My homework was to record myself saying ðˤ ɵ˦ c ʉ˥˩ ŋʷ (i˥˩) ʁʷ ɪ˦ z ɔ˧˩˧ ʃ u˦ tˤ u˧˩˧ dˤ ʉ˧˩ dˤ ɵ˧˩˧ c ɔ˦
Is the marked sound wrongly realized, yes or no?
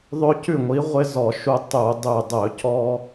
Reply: yes